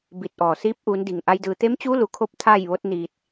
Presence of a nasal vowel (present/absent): absent